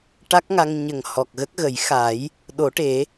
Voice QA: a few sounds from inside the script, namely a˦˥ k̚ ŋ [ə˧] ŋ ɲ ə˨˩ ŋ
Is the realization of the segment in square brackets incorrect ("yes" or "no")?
yes